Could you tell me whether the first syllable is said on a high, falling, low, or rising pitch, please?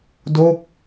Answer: falling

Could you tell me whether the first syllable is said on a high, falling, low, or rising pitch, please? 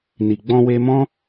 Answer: low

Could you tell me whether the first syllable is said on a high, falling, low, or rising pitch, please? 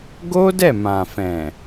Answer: high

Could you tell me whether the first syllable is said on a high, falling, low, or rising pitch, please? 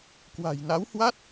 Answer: low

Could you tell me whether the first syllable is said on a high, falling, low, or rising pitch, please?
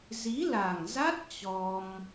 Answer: rising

